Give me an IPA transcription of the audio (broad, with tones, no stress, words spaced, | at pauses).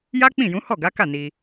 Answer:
ja˦k͡pĩ˦˨jũ˨˦ hɔ˦˨ɡa˨˦ka˦˨ ni˧